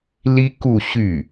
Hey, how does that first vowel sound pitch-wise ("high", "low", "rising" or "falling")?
high